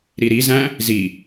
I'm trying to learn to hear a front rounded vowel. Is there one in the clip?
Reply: no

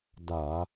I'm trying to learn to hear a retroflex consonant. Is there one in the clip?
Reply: no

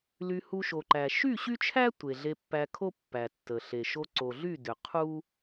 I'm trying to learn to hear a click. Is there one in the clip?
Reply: yes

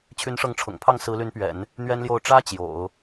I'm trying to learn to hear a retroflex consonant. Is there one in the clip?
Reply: yes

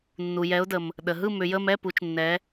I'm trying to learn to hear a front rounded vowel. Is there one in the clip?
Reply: yes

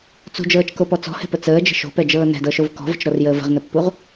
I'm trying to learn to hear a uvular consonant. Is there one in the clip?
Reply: yes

